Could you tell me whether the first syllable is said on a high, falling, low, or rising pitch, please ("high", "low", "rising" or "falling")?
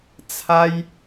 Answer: high